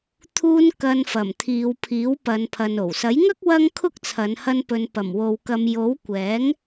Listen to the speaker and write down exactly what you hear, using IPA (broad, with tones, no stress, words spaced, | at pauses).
t̪ʰuː˧n kɐ˧nfɐ˨˩m t̪ʰiː˨˧wpʰiː˨˥wpɐ˨˧npʰɐ˨n o˨˩wsɐ˨˥jŋɐ˥k̚ wɐ˥ŋkʰʊ˥k̚ t͡sʰɐ˨˧nhɐ˧npɵ˨˧n pɐ˨˩mwo˨wkɐ˨˧m jo˨˥wkʷɛː˨˥ŋ